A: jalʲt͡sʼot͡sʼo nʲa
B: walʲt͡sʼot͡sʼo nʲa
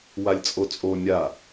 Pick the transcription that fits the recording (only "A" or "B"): B